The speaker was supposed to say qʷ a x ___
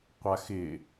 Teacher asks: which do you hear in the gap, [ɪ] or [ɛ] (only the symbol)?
ɪ